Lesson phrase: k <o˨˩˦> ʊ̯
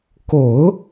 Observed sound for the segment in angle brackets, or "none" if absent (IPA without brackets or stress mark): o˨˩˦